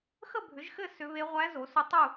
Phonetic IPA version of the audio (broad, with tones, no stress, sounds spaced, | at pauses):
x ə˥˨ bʱ ʏ˩˥ ʒ x ɘ˥˨ s ʏ˧˥ β e˧˥ ʁʷ æ˧˥ z o˩˥ s ʏ˧˥ tˤ u˥˨